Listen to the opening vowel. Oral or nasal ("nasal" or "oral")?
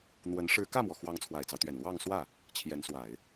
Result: oral